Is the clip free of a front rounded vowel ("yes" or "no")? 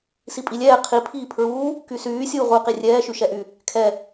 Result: no